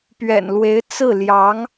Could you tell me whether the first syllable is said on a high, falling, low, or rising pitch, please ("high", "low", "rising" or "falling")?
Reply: low